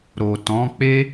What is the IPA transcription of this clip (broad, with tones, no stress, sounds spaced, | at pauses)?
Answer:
ɾ o˨ t ɔ̃˨˦ k͡p e˦